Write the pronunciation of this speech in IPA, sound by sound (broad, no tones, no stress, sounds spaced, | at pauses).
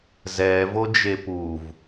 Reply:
z ɛː v o d͡ʒ e p u v